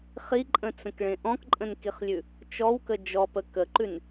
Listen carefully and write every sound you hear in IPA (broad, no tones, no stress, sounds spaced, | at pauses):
χ i ǃʼ ə̃ t͡s ə̃ k ɭ ẽ ʔ ɔ̃ k ǃʼ ə̃ n k i χ lʲ ʉ | t͡ʃ ɔ w k ə d͡ʒ ɔ p ə k ə ǃ ʉ n